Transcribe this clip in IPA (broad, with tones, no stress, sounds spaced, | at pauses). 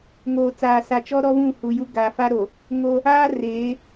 ŋ oː˨ t͡s aː˨ s a˨ t͡ʃ ɔ˦ ɾ ɔ˦ v ũ˦˨ h u˨ j u˦ ɡ a˨ f a˦ ɾ o˨ | ŋ o˦ | aː˦ r eː˨˦